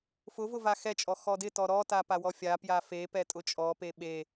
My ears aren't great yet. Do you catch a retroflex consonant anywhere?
no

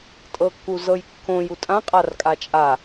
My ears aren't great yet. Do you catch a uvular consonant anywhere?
yes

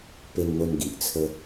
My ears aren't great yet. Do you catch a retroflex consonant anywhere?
no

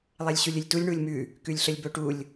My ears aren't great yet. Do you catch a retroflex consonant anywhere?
yes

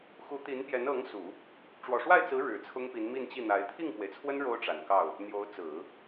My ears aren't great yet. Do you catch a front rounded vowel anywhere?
no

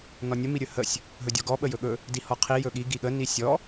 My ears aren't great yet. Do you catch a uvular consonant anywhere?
yes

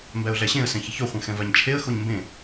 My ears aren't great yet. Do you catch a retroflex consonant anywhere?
no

